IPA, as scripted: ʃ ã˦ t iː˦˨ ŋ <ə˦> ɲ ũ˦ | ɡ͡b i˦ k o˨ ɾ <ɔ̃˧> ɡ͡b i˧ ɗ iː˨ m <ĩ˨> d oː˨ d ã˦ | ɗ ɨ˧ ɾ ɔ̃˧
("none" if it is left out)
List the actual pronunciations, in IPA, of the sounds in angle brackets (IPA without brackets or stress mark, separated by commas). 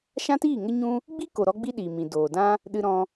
ə˦, ɔ˧, ĩ˨